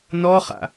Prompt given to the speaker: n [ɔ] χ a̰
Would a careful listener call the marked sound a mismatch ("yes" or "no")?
no